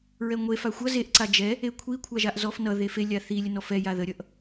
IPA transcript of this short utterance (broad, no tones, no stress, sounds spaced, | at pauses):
ɹ ɛ ŋʷ e f a xʷ ʌ z e ʔ ǀ a d͡ʒ ɛ | e kʷʰ i kʷʰ a ʒ a ʔ z ɔ f n ʌ ð e f e lʲ a θ i lʲ ə n ɔ f ɛ j a ð ə ɾʲ ʌ ʔ